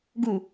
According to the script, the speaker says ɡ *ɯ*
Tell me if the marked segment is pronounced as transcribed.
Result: no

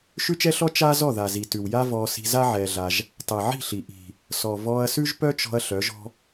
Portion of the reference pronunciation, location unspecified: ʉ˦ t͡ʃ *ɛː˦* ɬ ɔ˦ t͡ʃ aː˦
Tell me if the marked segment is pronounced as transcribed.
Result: no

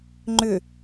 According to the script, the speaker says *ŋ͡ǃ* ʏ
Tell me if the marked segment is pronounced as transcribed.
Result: yes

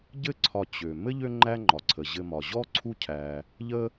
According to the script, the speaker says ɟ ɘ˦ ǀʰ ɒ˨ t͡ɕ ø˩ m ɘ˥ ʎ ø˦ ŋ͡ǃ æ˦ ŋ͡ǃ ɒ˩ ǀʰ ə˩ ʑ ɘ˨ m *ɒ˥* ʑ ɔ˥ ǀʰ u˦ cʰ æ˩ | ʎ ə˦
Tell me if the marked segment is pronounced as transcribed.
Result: no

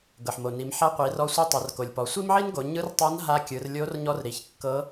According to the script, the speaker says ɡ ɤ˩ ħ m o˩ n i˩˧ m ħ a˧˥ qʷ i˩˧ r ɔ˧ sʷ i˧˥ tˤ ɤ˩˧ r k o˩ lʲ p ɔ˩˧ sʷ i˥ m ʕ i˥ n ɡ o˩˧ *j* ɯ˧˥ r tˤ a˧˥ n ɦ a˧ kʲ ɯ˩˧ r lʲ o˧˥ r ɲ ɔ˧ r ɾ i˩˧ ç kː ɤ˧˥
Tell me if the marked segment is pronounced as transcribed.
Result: no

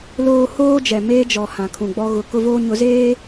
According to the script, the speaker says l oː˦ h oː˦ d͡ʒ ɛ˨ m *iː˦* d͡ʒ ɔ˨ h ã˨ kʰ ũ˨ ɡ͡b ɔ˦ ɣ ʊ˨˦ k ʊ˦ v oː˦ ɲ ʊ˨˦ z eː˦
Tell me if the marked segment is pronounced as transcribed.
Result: no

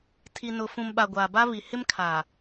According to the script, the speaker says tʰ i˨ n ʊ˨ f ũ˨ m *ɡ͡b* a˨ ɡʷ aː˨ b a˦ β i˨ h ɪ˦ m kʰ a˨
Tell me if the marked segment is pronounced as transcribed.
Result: no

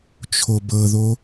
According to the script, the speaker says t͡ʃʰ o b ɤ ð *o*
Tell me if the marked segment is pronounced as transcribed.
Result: yes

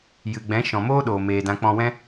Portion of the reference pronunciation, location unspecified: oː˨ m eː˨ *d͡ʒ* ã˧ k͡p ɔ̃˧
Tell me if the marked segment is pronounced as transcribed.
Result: no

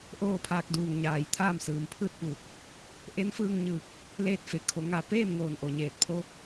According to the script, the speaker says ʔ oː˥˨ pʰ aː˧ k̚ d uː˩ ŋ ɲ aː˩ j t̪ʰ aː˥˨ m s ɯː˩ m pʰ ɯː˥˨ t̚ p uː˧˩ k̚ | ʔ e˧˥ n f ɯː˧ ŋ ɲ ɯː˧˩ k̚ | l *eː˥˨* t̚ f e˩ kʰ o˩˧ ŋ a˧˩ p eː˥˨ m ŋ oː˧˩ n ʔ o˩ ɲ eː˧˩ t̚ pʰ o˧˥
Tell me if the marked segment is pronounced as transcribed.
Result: yes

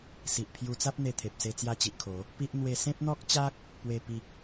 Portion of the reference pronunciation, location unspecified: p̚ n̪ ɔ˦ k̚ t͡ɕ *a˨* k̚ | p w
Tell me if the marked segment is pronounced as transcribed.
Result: no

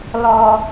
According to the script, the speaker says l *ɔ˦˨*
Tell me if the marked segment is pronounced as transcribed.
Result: no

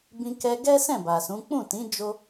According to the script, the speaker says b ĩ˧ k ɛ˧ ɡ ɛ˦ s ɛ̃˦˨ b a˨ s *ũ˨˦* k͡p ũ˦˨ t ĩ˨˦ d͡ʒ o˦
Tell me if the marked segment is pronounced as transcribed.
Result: yes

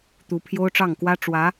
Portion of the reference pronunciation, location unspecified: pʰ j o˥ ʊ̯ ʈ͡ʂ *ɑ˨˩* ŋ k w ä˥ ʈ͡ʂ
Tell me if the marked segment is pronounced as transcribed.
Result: no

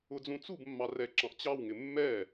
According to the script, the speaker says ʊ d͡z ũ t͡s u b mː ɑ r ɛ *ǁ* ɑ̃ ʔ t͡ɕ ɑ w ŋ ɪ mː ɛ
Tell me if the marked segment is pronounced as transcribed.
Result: yes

